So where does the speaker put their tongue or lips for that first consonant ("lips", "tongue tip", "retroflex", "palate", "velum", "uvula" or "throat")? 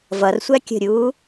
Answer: lips